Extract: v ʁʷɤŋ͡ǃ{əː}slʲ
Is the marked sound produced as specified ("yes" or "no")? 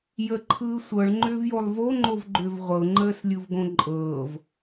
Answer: yes